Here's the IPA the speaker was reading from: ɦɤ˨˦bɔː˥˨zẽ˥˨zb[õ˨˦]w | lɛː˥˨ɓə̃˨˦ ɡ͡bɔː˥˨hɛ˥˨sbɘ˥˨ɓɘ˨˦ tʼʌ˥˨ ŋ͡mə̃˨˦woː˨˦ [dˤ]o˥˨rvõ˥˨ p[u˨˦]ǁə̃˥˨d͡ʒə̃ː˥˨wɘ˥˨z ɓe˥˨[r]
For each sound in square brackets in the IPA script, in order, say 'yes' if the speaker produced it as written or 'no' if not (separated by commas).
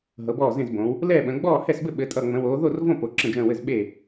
yes, no, no, no